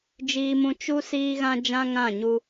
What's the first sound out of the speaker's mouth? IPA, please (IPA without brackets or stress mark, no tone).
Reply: d͡ʒ